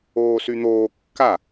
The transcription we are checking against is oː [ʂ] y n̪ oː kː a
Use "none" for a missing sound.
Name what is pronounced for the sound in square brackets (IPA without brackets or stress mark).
s